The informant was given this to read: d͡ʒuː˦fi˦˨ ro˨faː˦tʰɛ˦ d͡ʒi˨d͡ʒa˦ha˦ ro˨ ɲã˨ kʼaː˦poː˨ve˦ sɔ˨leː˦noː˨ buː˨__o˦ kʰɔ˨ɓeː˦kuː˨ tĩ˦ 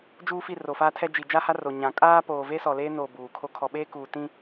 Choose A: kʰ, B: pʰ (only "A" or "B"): A